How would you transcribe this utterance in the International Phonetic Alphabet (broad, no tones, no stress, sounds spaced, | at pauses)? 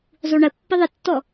zˤ u ɳ ə pː ɪ ðˤ ə tː ɔ